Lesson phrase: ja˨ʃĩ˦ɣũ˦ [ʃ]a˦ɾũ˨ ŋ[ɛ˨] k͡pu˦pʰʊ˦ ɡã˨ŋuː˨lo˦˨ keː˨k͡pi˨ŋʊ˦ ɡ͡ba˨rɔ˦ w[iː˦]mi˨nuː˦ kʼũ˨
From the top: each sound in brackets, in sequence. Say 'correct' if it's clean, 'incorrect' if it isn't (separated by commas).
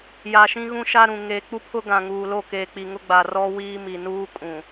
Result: correct, incorrect, correct